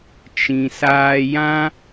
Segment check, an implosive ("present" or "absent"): absent